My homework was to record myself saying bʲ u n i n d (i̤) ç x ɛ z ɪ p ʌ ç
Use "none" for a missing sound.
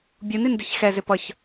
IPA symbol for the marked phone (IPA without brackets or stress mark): i̤